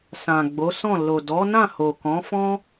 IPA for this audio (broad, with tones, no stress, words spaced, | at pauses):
sã˨ɡ͡bo˨˦sɔ̃˦˨ lo˨dɔ˨˦ nã˦˨ho˨kɔ̃˨˦fɔ̃˦